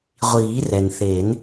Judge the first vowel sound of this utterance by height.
high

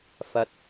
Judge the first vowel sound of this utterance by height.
low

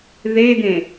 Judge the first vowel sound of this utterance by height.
mid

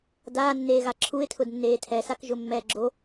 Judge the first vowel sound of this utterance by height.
low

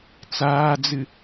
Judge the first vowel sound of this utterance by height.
low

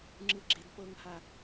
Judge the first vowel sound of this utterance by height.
high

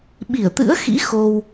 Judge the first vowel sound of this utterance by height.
high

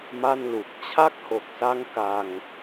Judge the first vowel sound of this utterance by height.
low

